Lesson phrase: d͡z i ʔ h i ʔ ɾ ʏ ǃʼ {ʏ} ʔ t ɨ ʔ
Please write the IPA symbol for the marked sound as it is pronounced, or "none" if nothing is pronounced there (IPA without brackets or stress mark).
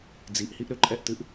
ɛ